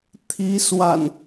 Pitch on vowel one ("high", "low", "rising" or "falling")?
rising